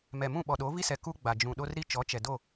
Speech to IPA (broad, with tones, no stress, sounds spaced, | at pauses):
m ɛ˨ m ũ˦˨ ɓ ɔ˨ ɗ o˨˦ v i˦ s ɛ˨ k u˦ ɡ͡b a˨ d͡ʒ ũ˨ ɗ o˦ r ɾ i˦ t͡ʃ ɔ˨˦ t͡ʃ ɛ˨ d o˦˨